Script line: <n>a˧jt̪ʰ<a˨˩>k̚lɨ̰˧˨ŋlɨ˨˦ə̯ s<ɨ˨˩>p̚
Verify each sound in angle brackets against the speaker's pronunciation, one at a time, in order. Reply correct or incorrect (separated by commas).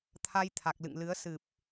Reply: incorrect, correct, correct